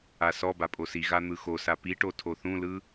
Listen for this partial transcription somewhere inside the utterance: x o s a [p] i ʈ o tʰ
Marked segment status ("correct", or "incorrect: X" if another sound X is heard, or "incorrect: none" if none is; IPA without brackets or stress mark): correct